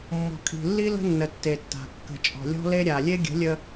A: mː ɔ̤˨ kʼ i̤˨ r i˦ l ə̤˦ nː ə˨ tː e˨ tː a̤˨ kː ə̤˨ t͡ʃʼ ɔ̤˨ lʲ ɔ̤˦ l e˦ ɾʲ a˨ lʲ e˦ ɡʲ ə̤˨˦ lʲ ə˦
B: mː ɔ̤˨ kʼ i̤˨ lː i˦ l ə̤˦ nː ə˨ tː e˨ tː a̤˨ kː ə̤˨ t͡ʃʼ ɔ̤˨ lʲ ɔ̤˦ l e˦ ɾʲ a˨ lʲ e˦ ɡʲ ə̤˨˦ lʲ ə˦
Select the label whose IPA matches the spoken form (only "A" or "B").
B